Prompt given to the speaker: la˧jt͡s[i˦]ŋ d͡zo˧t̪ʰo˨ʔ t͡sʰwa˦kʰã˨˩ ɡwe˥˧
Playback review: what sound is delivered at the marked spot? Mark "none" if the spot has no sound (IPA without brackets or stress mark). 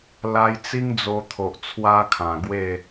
i˦